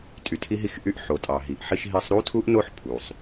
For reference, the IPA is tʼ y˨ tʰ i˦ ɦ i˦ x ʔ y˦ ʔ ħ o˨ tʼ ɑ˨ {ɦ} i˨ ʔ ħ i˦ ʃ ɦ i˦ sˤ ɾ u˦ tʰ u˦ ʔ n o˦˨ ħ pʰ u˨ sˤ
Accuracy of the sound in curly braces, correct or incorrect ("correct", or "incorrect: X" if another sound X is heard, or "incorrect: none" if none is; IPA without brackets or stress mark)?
correct